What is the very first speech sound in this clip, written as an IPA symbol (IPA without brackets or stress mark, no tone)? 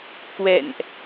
k